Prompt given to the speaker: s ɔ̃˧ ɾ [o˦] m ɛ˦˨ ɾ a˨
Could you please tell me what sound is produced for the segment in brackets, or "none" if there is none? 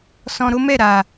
o˦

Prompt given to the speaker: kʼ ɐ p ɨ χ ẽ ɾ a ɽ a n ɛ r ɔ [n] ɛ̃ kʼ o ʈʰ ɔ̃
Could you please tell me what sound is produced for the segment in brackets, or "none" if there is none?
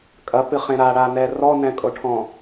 n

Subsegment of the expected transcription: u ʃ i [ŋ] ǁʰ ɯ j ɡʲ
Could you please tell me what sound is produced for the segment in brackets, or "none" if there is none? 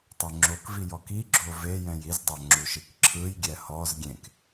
k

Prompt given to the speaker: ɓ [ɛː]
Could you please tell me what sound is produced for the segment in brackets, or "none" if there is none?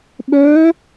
œː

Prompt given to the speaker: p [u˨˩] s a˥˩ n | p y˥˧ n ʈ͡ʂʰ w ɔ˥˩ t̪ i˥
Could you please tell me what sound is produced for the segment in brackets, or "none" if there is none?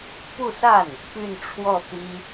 u˥˧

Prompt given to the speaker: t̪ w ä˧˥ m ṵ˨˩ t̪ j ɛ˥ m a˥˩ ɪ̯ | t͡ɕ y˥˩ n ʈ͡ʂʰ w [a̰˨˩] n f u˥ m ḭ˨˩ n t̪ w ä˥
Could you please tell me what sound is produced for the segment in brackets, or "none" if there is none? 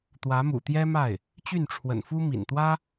ə̰˨˩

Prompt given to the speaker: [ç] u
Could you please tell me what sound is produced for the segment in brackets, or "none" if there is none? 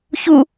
ç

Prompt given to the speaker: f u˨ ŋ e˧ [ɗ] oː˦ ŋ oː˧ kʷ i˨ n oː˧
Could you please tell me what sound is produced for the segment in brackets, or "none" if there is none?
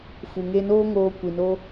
n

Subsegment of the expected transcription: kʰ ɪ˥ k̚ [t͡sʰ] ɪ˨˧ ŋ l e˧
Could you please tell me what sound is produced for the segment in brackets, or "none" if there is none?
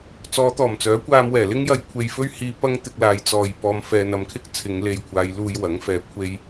t͡sʰ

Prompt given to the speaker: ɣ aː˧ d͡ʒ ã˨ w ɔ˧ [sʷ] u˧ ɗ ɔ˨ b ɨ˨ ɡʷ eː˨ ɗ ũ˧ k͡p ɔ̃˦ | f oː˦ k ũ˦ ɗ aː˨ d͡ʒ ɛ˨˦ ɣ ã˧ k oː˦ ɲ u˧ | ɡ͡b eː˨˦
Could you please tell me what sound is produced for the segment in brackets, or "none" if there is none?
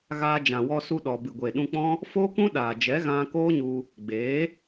s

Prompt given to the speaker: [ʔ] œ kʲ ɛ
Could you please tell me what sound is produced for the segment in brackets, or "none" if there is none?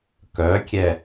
k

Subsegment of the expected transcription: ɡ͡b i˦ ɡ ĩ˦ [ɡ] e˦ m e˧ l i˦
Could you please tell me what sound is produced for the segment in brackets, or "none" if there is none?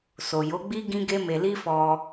ɡ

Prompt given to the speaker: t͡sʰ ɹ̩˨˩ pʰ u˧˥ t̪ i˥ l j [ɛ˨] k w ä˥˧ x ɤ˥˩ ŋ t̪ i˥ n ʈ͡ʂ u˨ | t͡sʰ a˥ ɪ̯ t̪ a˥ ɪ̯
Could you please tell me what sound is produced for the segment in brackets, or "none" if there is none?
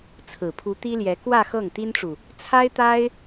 ɛ˧˥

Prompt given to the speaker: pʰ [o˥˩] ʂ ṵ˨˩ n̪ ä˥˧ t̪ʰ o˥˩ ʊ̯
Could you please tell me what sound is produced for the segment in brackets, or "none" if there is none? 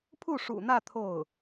u˥˩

